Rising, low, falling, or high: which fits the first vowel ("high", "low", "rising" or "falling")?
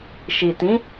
low